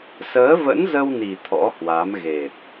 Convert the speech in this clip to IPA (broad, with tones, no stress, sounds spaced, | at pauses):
s əː˨˦ v ə̰˧˥ n z ə˧ w n i˨˩ t̪ʰ ɔ̰˧˥ h w a˨˦ m ɣ e˨˩ p̚